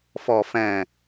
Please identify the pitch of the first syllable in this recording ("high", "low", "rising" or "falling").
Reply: low